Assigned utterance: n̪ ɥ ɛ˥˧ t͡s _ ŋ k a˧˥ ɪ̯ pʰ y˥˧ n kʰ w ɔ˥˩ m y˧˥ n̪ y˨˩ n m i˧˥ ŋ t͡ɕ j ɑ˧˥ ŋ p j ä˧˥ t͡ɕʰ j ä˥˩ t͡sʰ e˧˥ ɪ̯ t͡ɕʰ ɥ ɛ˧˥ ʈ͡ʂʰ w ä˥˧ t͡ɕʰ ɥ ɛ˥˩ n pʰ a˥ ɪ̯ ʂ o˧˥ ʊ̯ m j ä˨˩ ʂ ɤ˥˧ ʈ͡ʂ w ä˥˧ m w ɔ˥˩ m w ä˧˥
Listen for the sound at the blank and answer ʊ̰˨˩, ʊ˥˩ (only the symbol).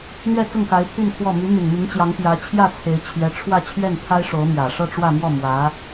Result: ʊ˥˩